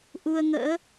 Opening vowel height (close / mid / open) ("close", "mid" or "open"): close